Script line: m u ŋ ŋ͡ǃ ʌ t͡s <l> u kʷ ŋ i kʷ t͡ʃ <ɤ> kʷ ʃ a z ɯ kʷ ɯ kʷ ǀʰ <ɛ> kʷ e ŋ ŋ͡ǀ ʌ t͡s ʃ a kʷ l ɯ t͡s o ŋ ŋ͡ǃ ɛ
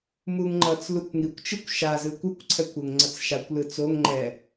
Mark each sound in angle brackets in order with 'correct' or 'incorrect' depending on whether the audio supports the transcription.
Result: correct, incorrect, correct

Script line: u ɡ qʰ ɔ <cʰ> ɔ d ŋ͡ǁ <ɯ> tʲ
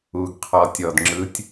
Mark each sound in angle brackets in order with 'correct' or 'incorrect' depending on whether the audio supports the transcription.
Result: incorrect, correct

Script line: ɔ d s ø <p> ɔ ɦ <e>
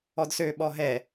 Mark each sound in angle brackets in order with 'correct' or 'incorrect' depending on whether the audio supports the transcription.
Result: incorrect, incorrect

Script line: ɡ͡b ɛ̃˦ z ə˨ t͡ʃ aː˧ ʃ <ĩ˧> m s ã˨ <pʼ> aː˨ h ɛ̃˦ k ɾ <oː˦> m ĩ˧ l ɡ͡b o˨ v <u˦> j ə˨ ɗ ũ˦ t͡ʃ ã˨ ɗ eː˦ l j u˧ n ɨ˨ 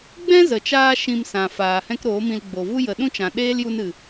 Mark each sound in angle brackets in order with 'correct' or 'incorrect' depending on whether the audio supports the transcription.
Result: correct, incorrect, incorrect, correct

